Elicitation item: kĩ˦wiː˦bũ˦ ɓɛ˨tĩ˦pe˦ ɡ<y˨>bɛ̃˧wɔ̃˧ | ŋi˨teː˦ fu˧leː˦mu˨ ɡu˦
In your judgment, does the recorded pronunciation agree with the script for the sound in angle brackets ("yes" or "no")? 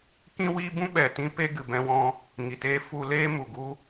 no